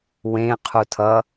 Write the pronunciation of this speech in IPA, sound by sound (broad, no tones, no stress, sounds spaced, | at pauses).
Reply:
w ẽ qʰ u tʰ ʌ